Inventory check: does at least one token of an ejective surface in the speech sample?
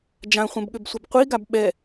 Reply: no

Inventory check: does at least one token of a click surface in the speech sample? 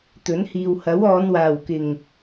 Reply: no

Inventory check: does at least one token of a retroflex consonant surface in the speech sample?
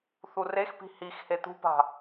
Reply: no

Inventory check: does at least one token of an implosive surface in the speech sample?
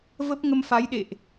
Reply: yes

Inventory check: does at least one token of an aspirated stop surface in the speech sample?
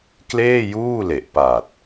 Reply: no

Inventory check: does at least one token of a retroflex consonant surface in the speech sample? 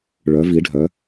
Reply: yes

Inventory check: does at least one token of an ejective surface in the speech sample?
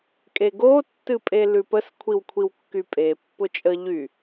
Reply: yes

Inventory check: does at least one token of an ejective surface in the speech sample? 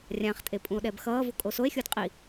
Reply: yes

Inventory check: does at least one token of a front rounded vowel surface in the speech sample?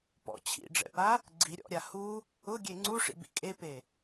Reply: no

